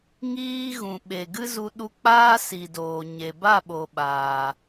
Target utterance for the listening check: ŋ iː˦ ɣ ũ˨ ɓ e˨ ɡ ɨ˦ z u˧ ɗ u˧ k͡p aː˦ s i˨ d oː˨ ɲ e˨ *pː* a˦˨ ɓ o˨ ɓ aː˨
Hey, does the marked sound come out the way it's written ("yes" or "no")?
no